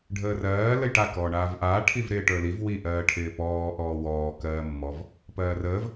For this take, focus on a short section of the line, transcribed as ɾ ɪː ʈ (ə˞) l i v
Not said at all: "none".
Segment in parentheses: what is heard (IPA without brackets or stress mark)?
ə˞